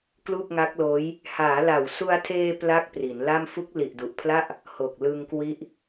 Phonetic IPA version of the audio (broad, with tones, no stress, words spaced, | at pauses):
klu˥˩k̚ŋa˦˥k̚loː˦˥j | haː˩˦la˨˩wsu˧a̯tʰeː˧ pla˥˩k̚pri˩˦nla˥˩m fu˦˥k̚li˨˩ʔdu˨˩ʔpʰla˥˩ʔ | ho˨˩k̚ lɯ˧ŋkwi˦˥ʔ